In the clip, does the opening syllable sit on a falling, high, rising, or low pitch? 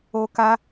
high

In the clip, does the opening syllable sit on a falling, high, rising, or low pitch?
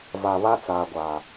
low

